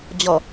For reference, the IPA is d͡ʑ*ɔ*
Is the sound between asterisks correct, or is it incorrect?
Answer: correct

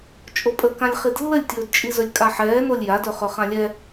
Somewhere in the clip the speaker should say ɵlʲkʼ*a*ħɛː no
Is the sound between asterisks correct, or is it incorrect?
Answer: correct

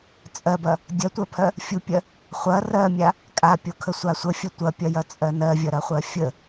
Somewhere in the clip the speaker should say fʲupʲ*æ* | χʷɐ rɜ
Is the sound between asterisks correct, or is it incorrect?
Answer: incorrect: ɜ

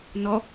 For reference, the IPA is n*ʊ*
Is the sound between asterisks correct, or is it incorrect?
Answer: incorrect: ɔ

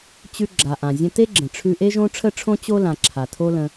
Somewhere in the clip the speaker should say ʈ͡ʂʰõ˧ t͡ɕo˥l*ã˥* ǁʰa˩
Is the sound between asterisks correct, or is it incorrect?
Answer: incorrect: ã˩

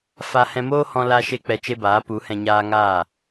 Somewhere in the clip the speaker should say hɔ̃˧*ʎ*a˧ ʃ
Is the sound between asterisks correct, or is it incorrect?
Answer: incorrect: l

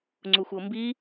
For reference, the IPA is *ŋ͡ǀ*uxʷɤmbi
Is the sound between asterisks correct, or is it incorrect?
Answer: correct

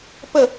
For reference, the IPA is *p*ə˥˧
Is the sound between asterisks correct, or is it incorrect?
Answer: correct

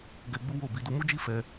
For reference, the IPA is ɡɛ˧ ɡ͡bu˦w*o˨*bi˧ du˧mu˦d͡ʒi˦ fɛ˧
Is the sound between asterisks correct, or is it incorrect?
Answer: incorrect: o˦˨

